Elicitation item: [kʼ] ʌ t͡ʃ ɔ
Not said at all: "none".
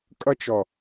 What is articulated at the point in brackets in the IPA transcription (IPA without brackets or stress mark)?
kʼ